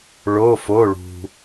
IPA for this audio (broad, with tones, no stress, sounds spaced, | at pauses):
ɭ o˩˧˩ f o˩˧˩ ɭ ṳ˩